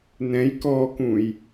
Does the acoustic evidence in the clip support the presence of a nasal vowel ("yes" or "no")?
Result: yes